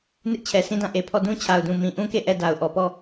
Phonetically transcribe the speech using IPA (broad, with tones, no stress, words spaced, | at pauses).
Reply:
nɪ˦ʔt͡ɕʰɛ˨ sĩ˦dã˦˨ ʔe˨pʰɔ˦˨ dũ˦t͡ɕʰa˨ʊ̯dũ˨ mĩ˨ʔũ˦ke˦˨ ʔɛ˦˨ da˨ʊ̯ʔɔ˨pɔ˦˨